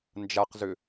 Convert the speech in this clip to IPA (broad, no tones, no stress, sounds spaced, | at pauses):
n d͡ʒ a q z ʏ